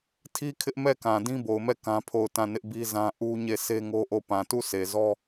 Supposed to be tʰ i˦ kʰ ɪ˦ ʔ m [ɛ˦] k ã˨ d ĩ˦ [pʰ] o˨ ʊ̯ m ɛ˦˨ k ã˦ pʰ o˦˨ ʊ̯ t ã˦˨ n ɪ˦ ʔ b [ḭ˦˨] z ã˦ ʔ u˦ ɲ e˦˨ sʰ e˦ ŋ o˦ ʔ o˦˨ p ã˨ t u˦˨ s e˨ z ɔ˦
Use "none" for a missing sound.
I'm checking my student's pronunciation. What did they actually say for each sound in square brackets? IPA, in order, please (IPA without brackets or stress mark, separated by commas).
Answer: ɛ˦˨, b, i˦